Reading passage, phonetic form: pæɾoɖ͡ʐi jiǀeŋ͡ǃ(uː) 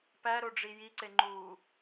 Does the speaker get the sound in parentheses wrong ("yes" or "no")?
no